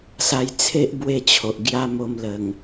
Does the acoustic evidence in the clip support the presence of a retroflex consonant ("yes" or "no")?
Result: no